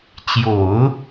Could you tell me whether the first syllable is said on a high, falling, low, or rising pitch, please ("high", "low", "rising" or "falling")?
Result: low